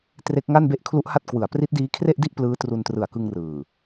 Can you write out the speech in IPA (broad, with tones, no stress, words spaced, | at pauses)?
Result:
tre˦˥k̚ŋa˥˩nbe˥˩ʔ kʰlu˦˥ʔha˥˩t̚ kwɯ˨˩a̯ pri˦˥t̚diː˦˥kʰre˥˩ʔdi˥˩ʔ plɯː˦˥tru˧ntrɯ˨˩a̯kɯ˧ŋ rɯː˨˩